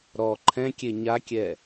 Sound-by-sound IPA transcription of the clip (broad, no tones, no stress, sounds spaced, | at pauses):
ɾ ɔ ǃʰ ɛ̃ kʲ e ɲ a kʲ ɛ